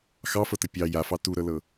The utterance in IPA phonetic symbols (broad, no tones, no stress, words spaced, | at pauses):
xɑfɤtə pʲɑ jafɑ tuɾɤlɤ